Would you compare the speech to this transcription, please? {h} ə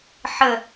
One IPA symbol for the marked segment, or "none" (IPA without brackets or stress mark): ħ